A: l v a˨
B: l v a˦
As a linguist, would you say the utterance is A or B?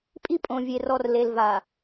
A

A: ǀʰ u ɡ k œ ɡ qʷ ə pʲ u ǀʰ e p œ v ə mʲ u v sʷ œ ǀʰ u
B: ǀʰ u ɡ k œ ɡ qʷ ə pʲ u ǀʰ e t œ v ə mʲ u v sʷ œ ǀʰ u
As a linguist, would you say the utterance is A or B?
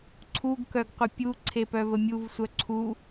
A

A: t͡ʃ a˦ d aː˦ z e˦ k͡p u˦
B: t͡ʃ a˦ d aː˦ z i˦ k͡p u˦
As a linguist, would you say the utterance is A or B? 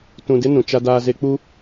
A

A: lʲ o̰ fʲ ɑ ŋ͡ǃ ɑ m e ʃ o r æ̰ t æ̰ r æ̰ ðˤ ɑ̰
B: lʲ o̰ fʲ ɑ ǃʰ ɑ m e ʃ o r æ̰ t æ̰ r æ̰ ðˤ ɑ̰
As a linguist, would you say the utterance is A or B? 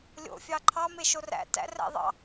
B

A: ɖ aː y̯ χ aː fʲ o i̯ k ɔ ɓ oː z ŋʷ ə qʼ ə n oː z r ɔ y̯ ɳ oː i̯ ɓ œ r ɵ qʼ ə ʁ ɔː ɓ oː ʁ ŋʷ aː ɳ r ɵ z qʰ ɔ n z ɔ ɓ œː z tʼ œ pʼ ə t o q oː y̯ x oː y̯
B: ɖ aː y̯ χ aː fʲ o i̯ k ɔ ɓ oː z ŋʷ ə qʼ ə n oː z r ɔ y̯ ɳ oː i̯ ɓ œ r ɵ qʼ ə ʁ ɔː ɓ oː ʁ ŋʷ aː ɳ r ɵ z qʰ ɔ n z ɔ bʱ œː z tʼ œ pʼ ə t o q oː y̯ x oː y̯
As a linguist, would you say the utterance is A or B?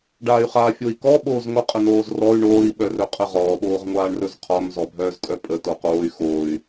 B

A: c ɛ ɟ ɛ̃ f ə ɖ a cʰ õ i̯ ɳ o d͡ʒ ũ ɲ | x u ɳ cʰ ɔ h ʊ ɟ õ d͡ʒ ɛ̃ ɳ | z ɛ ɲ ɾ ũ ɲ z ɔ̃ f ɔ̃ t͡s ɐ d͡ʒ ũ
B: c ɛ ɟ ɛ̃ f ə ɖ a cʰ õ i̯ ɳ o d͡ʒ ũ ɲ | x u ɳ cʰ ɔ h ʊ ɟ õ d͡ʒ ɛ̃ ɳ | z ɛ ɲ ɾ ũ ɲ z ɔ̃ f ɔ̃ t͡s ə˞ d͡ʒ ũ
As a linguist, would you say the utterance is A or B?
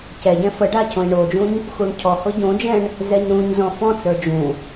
B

